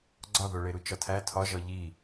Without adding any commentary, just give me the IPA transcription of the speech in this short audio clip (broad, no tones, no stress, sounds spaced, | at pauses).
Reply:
ɡ͡ǀ ɒ ð o ɭ e ɾ u t͡ʃ ɒ tʰ æ tʰ ɒ ʒ ɒ ʎ i